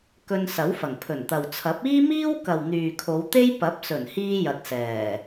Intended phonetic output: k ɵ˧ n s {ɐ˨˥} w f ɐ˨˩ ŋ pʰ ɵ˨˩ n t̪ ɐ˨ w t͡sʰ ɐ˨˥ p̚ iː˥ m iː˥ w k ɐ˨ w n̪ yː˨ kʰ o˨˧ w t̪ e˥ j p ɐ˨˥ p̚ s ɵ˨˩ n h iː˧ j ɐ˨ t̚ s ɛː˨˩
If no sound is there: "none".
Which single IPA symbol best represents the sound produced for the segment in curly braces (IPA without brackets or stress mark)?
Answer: ɐ˨˥